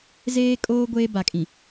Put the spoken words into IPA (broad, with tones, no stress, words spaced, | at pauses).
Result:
zeː˦kʼoː˦ ɡʷeː˦ba˨kʼĩ˨